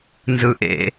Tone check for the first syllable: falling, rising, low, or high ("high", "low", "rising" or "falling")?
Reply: low